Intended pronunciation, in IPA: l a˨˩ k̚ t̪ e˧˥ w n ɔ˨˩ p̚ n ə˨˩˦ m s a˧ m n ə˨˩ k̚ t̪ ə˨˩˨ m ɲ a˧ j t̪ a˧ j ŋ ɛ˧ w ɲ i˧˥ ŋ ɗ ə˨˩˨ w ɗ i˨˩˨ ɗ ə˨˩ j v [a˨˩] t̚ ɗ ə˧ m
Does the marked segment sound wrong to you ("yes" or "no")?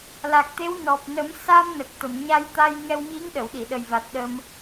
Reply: no